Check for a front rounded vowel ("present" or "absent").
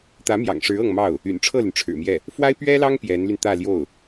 present